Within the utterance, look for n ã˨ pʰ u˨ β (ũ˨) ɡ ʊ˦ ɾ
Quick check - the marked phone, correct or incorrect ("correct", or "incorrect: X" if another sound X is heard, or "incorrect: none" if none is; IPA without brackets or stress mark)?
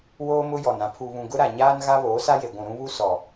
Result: correct